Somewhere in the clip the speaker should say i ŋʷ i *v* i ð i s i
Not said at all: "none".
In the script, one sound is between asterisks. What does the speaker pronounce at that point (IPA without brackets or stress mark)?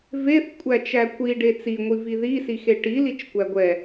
v